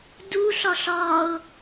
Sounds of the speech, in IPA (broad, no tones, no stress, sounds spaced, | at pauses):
d u ɬ ɒ ɬ ɒ ʊ̯